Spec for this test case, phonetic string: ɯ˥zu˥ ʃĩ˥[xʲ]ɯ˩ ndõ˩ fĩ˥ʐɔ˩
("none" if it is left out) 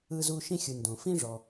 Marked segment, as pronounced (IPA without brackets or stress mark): xʲ